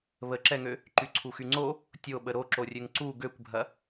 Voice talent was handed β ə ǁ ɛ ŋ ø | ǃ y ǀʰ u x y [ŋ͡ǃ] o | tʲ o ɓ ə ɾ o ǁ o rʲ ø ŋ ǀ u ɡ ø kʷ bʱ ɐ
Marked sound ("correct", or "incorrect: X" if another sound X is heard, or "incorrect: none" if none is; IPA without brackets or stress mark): incorrect: ŋ͡ǀ